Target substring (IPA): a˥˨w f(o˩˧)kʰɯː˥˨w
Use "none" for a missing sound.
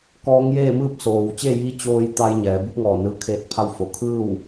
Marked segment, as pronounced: o˩˧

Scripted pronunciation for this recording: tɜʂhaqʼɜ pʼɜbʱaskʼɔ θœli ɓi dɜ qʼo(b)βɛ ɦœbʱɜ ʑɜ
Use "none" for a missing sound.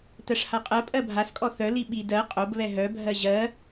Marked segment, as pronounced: b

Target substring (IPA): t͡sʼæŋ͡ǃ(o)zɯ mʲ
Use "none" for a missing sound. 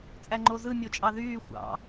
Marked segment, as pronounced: o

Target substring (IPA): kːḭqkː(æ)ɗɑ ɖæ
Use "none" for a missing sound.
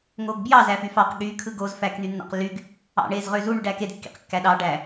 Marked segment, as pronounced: æ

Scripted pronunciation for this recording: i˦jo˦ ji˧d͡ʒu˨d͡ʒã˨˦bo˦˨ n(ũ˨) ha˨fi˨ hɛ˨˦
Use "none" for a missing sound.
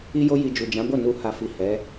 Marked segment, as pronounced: u˨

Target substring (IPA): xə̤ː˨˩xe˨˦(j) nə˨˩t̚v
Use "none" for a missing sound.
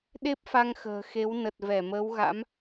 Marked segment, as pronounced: w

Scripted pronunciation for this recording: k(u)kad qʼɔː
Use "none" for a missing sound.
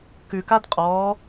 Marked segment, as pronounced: ʉ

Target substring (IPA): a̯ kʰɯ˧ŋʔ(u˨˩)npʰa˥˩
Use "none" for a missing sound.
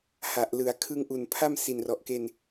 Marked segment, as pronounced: u˨˩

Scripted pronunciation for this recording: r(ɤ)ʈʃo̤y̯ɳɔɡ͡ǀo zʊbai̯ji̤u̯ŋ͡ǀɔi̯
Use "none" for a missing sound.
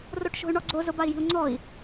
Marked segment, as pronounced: o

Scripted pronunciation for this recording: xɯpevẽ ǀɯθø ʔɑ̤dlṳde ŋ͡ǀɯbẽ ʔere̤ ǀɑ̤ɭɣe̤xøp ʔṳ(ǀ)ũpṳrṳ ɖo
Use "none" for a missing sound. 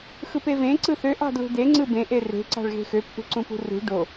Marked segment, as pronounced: ǀ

